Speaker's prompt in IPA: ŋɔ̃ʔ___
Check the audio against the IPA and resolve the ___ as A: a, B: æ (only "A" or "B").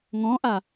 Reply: A